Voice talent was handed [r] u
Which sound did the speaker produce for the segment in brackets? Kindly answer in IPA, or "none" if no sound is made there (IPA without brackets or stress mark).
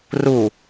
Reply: r